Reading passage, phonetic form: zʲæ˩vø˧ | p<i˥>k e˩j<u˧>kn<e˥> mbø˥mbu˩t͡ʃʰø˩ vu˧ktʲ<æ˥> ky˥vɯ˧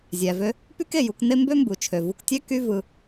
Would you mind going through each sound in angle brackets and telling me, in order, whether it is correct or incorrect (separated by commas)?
incorrect, correct, correct, correct